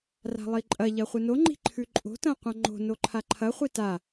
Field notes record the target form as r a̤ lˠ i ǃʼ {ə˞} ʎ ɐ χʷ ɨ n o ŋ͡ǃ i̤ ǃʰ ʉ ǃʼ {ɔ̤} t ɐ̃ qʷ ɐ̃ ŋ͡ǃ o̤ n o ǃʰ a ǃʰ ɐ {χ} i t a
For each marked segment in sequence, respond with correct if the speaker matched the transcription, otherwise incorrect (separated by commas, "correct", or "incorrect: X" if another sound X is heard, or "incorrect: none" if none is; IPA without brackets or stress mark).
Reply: incorrect: ɐ, incorrect: o̤, incorrect: χʷ